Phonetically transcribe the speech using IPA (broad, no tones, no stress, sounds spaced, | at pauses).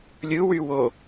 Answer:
lʲ ɯ w y w o